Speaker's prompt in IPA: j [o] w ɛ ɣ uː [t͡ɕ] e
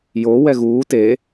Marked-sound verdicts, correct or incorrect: correct, incorrect: t

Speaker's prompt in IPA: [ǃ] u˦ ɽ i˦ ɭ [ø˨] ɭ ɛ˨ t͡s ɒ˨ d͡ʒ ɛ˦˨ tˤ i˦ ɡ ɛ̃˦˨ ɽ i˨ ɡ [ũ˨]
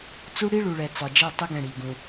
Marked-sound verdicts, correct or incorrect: incorrect: t͡s, incorrect: u˨, correct

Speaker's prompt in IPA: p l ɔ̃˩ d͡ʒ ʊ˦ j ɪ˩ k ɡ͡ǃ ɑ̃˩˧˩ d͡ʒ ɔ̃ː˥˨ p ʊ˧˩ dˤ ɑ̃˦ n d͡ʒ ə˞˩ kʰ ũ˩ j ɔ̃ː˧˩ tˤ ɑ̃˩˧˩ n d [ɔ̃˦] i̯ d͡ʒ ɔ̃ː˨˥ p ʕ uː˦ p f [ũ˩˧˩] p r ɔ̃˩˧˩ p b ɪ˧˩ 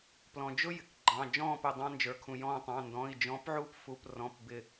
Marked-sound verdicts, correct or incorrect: incorrect: ɔ̃˩˧˩, incorrect: u˩˧˩

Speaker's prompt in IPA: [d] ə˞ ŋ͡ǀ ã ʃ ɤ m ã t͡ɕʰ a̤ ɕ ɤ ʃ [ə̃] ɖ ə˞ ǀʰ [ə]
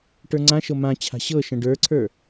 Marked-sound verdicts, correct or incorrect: incorrect: ʈ, correct, incorrect: ə˞

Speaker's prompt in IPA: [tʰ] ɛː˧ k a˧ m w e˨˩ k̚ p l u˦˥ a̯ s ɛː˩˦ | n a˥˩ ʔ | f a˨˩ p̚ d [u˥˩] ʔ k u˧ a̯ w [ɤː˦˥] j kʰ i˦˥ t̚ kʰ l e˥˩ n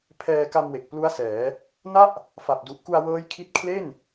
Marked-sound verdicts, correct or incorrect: incorrect: pʰ, incorrect: u˨˩, correct

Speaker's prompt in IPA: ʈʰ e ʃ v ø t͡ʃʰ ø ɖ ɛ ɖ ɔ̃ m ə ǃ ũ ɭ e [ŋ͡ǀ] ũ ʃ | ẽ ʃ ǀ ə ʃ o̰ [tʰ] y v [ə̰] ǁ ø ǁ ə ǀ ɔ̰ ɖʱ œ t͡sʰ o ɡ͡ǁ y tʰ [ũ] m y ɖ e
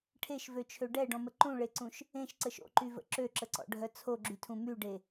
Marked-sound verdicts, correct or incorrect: incorrect: ǀ, incorrect: ǃ, correct, correct

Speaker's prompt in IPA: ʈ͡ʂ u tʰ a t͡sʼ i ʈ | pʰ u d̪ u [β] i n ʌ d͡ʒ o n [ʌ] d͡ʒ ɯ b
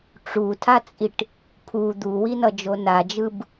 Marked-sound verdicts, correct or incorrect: incorrect: w, incorrect: a

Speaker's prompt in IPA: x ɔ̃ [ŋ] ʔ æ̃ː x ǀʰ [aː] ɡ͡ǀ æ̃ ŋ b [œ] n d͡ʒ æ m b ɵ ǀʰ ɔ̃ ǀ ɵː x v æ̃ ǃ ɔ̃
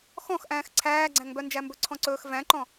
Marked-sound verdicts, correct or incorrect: incorrect: x, incorrect: æː, correct

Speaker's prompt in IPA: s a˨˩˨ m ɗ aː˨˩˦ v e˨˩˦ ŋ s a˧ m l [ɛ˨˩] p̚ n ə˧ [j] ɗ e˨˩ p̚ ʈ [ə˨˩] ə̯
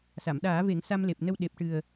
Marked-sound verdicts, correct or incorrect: incorrect: e˨˩, incorrect: w, incorrect: ɨ˨˩

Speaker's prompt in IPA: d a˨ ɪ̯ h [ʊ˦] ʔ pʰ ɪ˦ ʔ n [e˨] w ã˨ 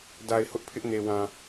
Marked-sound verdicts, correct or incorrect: correct, correct

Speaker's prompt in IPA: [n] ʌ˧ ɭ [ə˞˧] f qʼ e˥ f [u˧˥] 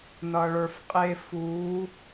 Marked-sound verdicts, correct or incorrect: correct, correct, correct

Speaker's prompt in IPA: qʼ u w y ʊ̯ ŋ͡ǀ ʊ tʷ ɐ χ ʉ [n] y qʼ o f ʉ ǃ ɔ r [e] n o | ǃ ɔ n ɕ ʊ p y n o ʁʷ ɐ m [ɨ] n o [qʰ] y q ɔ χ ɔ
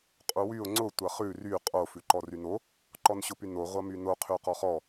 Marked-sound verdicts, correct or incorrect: incorrect: r, incorrect: y, incorrect: y, correct

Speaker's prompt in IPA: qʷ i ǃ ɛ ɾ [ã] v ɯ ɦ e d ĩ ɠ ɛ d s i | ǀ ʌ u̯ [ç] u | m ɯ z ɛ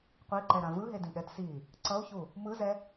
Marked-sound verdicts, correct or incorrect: correct, correct

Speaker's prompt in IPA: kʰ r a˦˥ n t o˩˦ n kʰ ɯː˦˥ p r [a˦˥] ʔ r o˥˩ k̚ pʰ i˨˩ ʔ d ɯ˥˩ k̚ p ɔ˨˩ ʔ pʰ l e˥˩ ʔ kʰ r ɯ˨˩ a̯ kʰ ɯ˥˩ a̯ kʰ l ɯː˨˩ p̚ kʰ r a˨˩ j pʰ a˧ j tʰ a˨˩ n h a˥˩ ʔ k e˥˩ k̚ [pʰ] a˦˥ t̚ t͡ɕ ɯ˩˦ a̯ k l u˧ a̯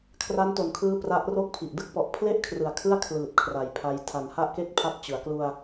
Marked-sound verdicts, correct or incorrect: correct, correct

